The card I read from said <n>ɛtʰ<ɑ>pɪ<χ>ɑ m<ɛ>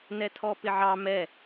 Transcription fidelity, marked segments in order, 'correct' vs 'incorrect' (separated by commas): correct, incorrect, incorrect, correct